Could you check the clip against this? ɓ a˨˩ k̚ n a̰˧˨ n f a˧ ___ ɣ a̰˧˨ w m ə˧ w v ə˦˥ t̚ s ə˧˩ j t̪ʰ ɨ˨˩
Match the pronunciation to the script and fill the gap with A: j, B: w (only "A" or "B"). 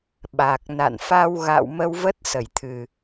B